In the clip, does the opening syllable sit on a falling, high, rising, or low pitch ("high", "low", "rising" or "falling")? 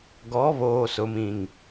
rising